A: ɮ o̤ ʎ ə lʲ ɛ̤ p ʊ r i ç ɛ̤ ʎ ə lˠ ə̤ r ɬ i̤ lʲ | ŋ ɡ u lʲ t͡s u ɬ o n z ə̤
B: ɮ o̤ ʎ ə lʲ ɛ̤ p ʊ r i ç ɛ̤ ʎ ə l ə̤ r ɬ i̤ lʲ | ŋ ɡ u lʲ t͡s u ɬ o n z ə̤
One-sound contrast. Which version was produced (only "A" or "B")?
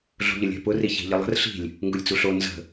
A